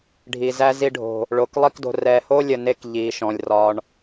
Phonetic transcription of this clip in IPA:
ɖʱ i˨ z æ˦ z i˧ ɖʱ o̤˨ | ɭ o˨ k lˠ i˦ k d o̤˧ r ɛ˨ h o˦ lʲ ə˨ n e˧ k ʎ i˨˦ ʃ ɔ̃˨ lʲ r ɒ˦ ɳ

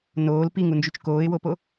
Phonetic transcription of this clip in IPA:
n oː l p i ŋ u n d͡ʒ y t͡ʃ k oː ɪ̯ w o p o

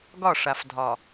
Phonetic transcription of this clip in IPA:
ɡ ɒ˦˨ ʂ a˨ f dʱ ɒ˨

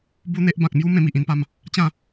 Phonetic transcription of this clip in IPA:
b u˦ n̪ e˦ ʔ b ã˨ k̚ m j u˦ m ẽ˧ m i˨ ʔ ĩ˧ n p a˧ m | t͡ɕ ã˥˧

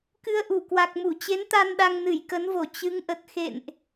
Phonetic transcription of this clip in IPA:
k ɨ˧ ə̯ ʔ u˧˩ k w a˨˩ k̚ m u˧˩ t͡ɕ e˨˦ n t̪ a˧ n ɗ a˧ ŋ n ɨ˧˩ j k ə˨˦ n v o˧˩ t͡ɕ ɨ˨˦ ŋ ʔ ə˨˩ t̚ x ḛ˧˨ n ʔ

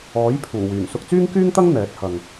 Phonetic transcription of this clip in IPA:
ɔː˨˥ j pʰ uː˨˩ w yː˨˩ n s ʊ˧ k̚ t͡s yː˥ ŋ k yː˥ ŋ t̪ ɐ˥ ŋ n̪ ɛː˨˥ t̚ h ɐ˨ ŋ

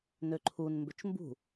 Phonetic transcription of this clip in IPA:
n ø ǃʰ u n m b ø t͡ʃ m b ṳ

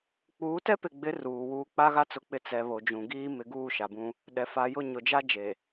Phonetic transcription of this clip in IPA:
k͡p uː˨˦ t ɛ˦ p ɪ˨ ɡ͡b ɪ˨˦ r uː˨ w uː˦ k͡p a˦ ɣ a˦ t͡s ʊ˨ k͡p ɪ˨ t͡s ɛ˨ β o˨ d͡ʒ ũ˨ ɡ iː˦ m ɪ˨ ɡ uː˦˨ ʃ a˨ b ũ˦ | ɗ ɛ˨ f a˨ j ʊ˦˨ ɲ ʊ˨ d͡ʒ a˦ d͡ʒ e˨

